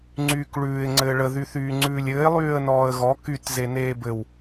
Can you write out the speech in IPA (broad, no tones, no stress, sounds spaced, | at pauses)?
ŋ͡ǀ yː k ɭ ʉː ɪ̯ ŋ͡ǀ ɘː ɭ ə ð y θ yː ŋ͡ǀ ʉː lʲ ɘː ɪ̯ lˠ yː ə̯ n ɔː ə̯ ɣ ɔ k y t z e n eː b ɘ w